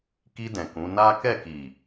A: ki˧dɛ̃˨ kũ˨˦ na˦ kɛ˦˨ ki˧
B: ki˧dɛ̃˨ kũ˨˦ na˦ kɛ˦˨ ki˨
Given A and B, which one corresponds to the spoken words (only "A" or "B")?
B